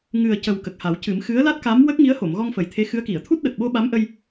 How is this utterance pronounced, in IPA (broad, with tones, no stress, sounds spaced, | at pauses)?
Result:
ŋ ɨ˨˩ ə̯ c ə˨˩ w k ə˨˩ k̚ h a˨˩˦ w c ɨ˨˩˦ m x ɨ˧˥ ə̯ l a˦˥ t̚ k a˧˥ m w ə˦˥ k̚ ŋ i˧˥ ə̯ h o˨˩˨ m ɣ ɔ˧ ŋ f ə˨˩ j t̪ʰ e˧˥ x ɨ˧˥ ə̯ k i˨˩˨ ə̯ t̪ʰ u˦˥ t̚ ɗ ə˨˩ k̚ ɓ o˧ ɓ a˧˥ m ʔ ə˧ j